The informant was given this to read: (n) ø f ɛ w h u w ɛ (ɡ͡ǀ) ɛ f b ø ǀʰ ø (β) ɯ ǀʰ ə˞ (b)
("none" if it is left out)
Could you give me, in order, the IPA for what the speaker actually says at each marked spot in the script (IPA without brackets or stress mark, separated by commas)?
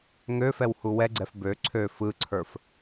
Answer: ŋ, ɡ͡ǀ, f, f